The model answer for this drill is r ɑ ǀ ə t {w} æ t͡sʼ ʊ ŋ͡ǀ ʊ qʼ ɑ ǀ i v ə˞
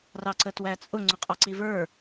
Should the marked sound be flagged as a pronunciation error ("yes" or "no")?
no